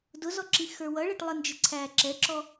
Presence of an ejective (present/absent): absent